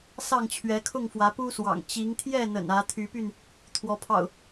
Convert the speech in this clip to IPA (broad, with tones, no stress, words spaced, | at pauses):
sɑ˥˨ŋt͡ɕʰɥɛ˨˦ kʰʊ˥˨ŋfwä˨˦pu˦swɑ̰˨˩ŋ t͡ɕi˨˦ŋt̪ʰjɛ˥˨n̪ə̰˨˩n ä˨˦ t̪ʰy˨˦py˥˨n | t̪ʰwɔ˨˦pʰɑ̰˨˩ʊ̯